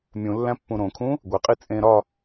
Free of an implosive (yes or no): yes